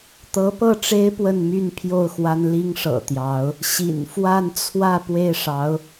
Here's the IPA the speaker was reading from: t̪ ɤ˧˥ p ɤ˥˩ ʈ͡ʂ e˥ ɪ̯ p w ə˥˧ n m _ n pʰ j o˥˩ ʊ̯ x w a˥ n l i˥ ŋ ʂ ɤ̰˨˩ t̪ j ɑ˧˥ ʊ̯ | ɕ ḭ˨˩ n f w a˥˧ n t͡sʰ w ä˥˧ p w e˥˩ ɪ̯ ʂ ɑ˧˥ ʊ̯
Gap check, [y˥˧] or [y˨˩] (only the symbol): y˥˧